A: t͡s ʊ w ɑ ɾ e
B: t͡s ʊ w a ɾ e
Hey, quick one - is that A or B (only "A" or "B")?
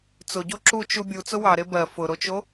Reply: A